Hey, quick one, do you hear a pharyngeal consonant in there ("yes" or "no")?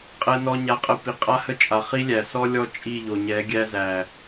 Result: no